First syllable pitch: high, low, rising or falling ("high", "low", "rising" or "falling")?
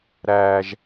high